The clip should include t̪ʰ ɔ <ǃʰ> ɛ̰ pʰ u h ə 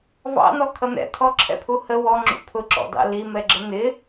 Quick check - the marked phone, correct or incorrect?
incorrect: ǁʰ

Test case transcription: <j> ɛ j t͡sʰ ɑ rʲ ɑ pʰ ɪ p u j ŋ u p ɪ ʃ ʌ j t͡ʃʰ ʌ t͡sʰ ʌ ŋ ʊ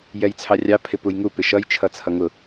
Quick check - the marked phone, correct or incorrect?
correct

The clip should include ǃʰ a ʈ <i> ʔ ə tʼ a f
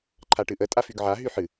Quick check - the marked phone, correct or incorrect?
incorrect: ɨ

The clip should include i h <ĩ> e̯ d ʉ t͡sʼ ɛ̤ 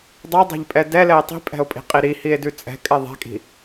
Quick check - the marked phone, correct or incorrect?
incorrect: i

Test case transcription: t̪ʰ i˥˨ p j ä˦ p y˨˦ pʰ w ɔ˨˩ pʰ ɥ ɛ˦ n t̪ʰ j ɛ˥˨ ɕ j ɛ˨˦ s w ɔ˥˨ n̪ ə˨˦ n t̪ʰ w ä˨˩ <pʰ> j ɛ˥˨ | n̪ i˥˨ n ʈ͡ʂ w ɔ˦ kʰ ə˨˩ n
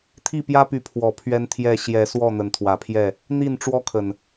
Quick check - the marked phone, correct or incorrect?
correct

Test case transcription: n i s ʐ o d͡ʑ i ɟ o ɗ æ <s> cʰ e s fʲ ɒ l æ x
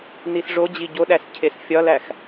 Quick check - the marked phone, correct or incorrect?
correct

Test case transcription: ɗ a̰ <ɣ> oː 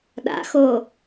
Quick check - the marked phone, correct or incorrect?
incorrect: x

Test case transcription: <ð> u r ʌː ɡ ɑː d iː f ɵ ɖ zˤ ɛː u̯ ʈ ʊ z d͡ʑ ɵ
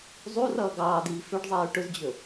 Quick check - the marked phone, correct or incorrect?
incorrect: zˤ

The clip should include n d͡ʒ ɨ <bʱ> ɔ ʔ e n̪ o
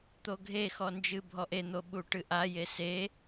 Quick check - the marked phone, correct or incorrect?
correct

